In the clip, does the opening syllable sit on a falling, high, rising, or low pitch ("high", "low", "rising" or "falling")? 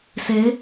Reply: rising